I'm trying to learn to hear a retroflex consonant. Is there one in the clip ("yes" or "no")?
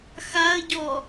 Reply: no